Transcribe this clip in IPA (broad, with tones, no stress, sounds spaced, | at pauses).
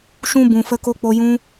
ʃ ũ˧ b ũ˨ f ə˧ k o˧ k͡p o˧ j ũ˦